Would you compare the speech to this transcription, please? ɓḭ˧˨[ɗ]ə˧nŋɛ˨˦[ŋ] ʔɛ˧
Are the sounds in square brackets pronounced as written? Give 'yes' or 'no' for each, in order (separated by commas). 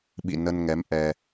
no, no